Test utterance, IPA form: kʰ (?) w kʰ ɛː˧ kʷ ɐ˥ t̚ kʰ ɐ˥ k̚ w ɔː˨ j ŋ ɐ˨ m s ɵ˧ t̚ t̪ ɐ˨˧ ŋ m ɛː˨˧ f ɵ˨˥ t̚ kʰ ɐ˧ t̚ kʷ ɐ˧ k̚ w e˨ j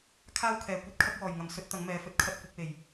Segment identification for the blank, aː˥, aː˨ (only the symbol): aː˥